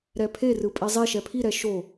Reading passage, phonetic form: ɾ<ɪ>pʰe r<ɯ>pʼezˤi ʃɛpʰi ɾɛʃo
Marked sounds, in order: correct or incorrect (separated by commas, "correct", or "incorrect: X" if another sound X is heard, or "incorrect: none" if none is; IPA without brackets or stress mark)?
incorrect: ɛ, correct